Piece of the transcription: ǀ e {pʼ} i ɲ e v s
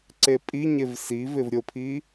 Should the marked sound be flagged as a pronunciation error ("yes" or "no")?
no